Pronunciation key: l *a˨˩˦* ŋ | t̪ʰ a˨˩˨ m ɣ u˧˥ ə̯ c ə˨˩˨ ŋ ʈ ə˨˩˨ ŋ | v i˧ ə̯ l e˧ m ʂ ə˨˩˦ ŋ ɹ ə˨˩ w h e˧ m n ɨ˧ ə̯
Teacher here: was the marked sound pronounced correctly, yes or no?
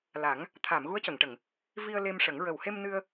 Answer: yes